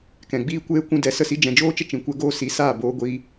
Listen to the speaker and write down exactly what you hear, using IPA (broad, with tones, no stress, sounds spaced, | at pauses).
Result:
k ɛ̃˨ ɡ͡b iː˦ kʷ eː˦ kʷ ũ˧ d ɛ˧ s ə˦˨ s i˦ d͡ʒ ɛ̃˨ d͡ʒ oː˦ t͡ʃ ə˦ t͡ʃ ĩ˨ kʷ ɛ˦ ɡ oː˦ s i˨˦ s aː˦˨ b oː˦ ɡʷ iː˦